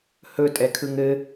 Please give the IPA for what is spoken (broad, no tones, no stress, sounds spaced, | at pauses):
h ɵ tʼ ɛ kʰ ɯ ŋ ɘ